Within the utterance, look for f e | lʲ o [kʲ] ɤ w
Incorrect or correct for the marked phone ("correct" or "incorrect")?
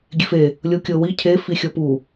correct